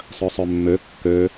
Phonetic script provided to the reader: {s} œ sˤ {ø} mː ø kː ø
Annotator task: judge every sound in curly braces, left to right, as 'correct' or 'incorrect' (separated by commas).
incorrect, incorrect